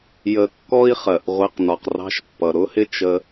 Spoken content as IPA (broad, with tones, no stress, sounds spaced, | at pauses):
j ə˧ kː ɔ˥ i̯ χ ɜ˩ ʔ ʁʷ ɛ˧ q n ɒ˩ q r ɑ̤˧ ʃ pː ʌ˩ ɾ ʊ˥ h ɪ˥ t͡ʃ ə˧